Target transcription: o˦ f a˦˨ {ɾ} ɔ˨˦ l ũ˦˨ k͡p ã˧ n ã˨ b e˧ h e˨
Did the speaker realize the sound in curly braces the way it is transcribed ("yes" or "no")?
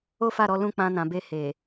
yes